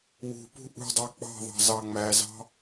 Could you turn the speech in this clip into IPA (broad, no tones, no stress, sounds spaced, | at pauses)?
w ṳ p ṳ ʔ ṳ dˤ ɑ k͡p ɑ̤ ðˤ ɑ̤ z ɑ ŋ͡m æ z ɑ̤